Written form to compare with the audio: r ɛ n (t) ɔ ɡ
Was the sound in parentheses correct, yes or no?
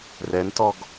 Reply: yes